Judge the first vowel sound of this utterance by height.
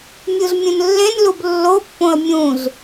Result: high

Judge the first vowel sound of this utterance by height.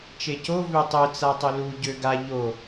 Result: mid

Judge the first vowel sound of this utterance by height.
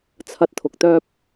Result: low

